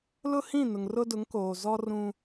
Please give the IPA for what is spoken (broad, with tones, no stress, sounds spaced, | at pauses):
l ʊ˦ h ĩ˦˨ n ʊ˨ ŋ r ʊ˦ d ʊ˨˦ ŋ k oː˨ z ɔ˦ r ũ˦